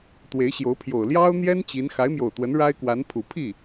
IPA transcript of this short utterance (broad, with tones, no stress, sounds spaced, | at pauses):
t̪ w e˧˥ ɪ̯ ɕ j o˧˥ ʊ̯ pʰ j o˨˩ ʊ̯ l j ɑ˥ ʊ̯ n̪ j ɛ˥ n t͡ɕ i˧˥ n x a˧˥ ɪ̯ m j o˨˩ ʊ̯ t̪ w ə˧˥ n ɻ a˥ ɪ̯ k w a˧˥ n pʰ u˨˩ pʰ i˥˩